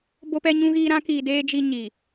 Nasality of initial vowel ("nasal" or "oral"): oral